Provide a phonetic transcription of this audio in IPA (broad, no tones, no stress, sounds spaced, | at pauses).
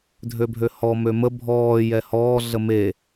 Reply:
dʱ ø bʱ ø h ɔ m ø m ə bʱ ɔː j ɛ h ɔː ɮ ə m e